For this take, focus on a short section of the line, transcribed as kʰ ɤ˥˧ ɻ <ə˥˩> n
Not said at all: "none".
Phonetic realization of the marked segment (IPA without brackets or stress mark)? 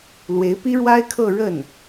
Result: ə˥˩